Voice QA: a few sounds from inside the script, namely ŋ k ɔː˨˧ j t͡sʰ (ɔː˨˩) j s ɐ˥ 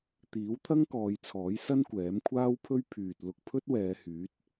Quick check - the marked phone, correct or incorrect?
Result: incorrect